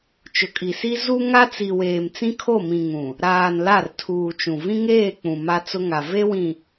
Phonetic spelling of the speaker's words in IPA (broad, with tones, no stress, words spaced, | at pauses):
t͡ʃʊ˨kʼi˨si˦ zu˦ŋa˦t͡si˨ weː˨mt͡sĩ˦kʰo˦˨mĩ˨ ŋũ˨ | ɾaː˨n la˦˨rtʰuː˨t͡ʃũ˨ vĩ˦ŋeː˦˨ k͡pũ˨ma˦t͡sʊ˦ŋa˨ ve˦wĩ˨